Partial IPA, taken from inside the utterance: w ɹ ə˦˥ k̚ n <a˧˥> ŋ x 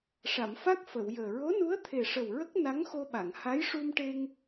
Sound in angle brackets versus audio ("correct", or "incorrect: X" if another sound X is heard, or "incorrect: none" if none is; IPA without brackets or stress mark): correct